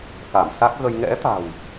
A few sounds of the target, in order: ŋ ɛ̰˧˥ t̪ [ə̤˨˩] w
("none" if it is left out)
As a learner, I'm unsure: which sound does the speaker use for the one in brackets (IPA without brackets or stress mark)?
a̤˨˩